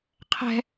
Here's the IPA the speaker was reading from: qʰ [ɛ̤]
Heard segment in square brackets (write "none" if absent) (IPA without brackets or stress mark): ɛ̤